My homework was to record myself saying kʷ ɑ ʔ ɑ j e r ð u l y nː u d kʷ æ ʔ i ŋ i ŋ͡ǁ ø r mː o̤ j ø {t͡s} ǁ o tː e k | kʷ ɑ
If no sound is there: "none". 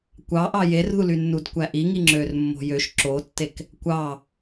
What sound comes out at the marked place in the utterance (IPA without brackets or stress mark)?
ʃ